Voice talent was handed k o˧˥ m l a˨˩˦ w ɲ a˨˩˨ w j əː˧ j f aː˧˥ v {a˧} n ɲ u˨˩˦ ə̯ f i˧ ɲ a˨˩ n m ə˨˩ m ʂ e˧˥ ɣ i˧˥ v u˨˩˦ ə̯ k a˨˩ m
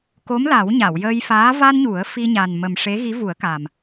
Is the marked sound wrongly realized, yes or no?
no